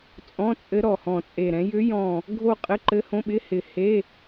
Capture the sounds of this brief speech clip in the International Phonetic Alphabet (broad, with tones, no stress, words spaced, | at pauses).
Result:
t͡sʼɔ̃˧˥˧t͡sʼɘ˧˥ ɾɔ˧˩hɔ̃˧˩t͡sʼe˧˩ɾɛ̃˧˥ jʏ˧˥jɔ̃˧˩ | ɡʱo˥˧ qʼɘ˧˥˧ǃɘ˧˥hõ˧˥˧ɓɪ˧˥˧ hɪ˧˩he˧˥˧